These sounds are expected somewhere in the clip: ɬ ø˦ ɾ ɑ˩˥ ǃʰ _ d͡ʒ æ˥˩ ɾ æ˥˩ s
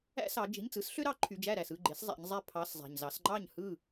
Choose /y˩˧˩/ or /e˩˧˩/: y˩˧˩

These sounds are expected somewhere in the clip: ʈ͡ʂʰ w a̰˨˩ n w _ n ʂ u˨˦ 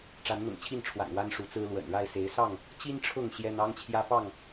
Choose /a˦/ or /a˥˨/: a˦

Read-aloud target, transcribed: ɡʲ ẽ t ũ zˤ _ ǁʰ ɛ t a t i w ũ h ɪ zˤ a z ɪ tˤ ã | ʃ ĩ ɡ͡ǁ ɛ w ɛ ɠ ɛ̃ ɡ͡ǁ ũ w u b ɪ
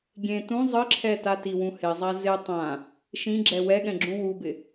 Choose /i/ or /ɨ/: ɨ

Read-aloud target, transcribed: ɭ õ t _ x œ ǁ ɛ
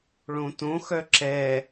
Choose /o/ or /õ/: õ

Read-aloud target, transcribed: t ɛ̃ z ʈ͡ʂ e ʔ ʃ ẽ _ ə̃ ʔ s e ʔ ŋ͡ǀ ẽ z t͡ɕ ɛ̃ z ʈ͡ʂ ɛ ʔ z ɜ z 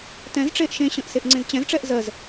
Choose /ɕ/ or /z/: ɕ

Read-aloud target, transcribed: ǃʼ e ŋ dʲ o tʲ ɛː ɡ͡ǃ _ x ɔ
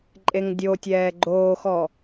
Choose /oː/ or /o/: oː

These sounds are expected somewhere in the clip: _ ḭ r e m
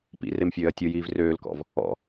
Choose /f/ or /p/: p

